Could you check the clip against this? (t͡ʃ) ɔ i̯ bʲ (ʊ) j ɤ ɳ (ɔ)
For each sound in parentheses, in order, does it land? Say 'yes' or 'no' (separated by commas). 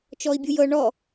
yes, no, yes